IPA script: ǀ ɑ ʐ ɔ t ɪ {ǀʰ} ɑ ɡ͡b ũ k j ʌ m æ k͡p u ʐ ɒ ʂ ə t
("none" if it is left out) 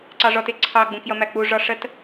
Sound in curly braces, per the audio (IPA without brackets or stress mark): ǀʰ